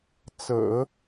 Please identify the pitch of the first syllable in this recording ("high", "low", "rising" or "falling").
low